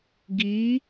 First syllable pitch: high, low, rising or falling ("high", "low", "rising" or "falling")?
rising